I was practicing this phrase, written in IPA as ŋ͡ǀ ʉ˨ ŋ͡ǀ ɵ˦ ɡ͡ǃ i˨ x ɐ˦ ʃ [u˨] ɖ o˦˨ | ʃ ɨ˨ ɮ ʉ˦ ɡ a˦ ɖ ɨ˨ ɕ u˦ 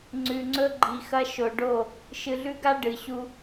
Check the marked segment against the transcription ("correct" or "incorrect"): incorrect